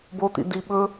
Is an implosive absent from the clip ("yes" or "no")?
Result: no